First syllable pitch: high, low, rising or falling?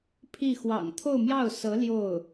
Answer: falling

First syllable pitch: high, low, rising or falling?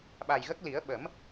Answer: low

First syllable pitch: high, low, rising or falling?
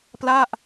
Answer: falling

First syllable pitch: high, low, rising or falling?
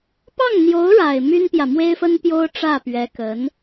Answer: falling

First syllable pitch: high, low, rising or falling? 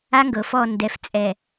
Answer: high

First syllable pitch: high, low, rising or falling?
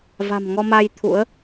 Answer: low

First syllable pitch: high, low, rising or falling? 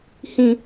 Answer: low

